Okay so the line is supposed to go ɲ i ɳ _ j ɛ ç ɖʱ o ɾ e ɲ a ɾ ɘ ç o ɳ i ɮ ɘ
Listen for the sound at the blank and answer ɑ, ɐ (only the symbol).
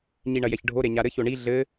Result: ɐ